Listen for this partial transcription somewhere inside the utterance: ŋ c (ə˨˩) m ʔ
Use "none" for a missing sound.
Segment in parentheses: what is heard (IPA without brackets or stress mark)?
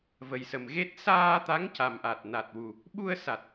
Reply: a˨˩